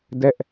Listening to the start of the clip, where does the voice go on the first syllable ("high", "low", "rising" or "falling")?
high